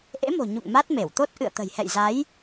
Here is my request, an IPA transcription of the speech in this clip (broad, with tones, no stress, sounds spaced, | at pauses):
ʔ ḛ˧˥ m o̤˨˩ ɲ ṵ˧˨ ŋ m a˦˥ t̚ m e˧˩ w t̪ o˦˥ t̚ ʔ ɨ̰˧˨ ə̯ t̪ ə̤˨˩ j h ɛ̰˧˨ j z a˨˦ j